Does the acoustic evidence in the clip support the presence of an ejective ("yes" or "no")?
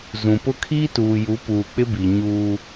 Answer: no